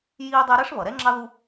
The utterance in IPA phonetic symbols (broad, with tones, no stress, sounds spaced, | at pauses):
j iː˦ dˤ ɛ˦ ɾ ɛ˥ ʂ β ʌ˩ ɾ ɛ˥ ŋ͡ǁ ɑ˥ ð u˦